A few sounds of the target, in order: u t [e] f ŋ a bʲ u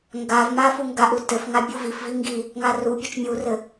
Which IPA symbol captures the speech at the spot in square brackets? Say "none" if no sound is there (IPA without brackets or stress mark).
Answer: ɘ